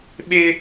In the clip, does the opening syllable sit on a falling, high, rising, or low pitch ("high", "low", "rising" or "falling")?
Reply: high